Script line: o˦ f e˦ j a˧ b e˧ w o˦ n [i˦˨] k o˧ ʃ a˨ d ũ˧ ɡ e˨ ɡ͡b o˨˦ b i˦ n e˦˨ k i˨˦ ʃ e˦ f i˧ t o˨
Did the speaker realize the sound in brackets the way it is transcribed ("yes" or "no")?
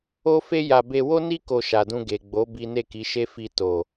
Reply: no